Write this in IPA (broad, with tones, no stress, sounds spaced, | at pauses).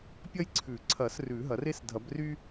pʲ ɐ˥ j ǀʰ ʉ˨˩˦ ǀʰ ɐ˨˩˦ s r ʉ˨˩˦ ɦ ɐ˨˩˦ r e˥ s dʱ ɐ˨˩˦ b r y˥